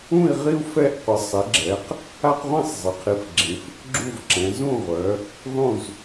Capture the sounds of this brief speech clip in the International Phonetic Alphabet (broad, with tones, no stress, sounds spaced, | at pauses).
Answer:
ũ˦˨ i̯ ʁ i˦ u̯ f ɛ˦ ʔ qʷ ɪ˩˧ sˤ ɪ˩˧ ɡ͡ǁ ɛ˩˧ q | a˦ q ʁʷ ĩ˦˨ sˤ zˤ ɪ˩˧ qʰ i˩˧ f ɡ͡ǁ ĩ˩˧ f | ɡ͡ǁ u˦˨ v ǁ ɛ̃˩˧ z ũ˦˨ ʁʷ œ˩˧ | ðˤ ũ˦˨ z